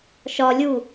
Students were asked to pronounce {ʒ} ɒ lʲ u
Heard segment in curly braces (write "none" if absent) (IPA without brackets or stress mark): ʃ